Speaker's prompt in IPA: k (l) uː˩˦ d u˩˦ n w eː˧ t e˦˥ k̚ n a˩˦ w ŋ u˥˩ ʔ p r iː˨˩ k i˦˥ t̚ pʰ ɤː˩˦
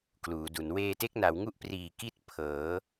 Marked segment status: correct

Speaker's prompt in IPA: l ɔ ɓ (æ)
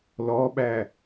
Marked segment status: correct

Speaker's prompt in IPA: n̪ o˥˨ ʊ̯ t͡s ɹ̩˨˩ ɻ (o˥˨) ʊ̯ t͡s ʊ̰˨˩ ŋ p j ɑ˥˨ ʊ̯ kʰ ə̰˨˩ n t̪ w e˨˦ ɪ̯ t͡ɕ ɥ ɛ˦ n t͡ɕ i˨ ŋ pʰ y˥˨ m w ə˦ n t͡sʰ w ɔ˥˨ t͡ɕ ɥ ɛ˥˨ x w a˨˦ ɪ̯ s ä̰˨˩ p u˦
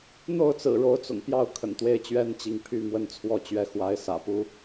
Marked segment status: incorrect: o˨˦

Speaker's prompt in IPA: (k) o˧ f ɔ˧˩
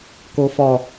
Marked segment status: correct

